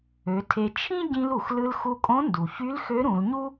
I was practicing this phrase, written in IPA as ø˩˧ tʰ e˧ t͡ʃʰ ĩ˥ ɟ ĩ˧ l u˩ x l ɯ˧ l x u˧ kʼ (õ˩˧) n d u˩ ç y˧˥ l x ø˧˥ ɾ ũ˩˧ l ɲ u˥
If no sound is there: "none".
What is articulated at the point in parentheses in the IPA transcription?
õ˧˥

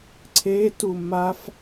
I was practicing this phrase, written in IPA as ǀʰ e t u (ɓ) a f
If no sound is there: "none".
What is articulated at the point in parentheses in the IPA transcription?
m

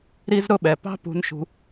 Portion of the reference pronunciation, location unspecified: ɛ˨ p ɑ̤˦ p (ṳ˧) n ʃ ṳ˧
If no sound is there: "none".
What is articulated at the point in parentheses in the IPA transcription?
ṳ˧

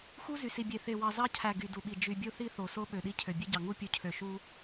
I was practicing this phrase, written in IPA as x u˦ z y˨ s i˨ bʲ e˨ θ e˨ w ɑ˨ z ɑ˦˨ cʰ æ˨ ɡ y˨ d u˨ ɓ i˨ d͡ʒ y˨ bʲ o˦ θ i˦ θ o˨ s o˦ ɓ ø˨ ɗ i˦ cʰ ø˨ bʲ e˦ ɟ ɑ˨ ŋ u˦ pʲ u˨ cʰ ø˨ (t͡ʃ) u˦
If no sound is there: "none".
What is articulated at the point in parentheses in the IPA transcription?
ʃ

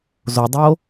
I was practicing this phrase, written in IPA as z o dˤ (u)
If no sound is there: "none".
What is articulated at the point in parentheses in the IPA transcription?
o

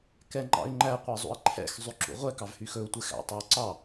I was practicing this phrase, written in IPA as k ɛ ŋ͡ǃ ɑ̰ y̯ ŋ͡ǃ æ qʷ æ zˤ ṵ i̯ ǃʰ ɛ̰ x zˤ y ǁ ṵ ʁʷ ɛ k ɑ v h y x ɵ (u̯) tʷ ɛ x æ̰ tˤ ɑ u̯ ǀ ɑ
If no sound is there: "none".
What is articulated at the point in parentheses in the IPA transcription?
u̯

